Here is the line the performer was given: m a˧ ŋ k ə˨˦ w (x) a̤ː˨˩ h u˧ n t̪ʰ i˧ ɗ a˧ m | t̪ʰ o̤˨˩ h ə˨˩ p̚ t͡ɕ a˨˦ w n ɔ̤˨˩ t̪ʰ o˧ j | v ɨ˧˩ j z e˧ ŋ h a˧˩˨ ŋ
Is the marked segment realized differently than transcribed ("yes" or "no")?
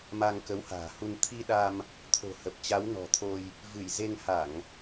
yes